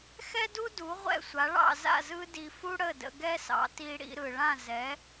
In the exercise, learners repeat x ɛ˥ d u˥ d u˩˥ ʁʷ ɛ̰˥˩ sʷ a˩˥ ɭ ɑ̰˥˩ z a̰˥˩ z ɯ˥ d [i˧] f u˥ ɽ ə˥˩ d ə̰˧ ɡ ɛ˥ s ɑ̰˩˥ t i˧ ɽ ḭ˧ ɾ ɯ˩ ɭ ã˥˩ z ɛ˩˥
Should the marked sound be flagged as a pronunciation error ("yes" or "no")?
no